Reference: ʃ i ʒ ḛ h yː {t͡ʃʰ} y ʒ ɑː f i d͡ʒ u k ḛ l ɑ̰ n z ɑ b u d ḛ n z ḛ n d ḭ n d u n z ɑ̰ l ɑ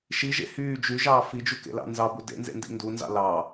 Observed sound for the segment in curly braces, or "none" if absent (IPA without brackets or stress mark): d͡ʒ